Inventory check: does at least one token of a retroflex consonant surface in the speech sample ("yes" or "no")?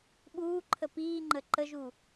no